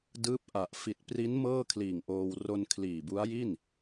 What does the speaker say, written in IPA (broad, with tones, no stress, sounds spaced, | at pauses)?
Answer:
d ɯː˦˥ p̚ ʔ a˨˩ ʔ f i˨˩ t̚ p r i˦˥ n m ɤː˥˩ kʰ l iː˨˩ ŋ ʔ oː˧ w r o˧ n kʰ l iː˨˩ b u˦˥ a̯ j i˥˩ n